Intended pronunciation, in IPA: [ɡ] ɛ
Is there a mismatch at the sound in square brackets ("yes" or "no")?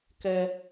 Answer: yes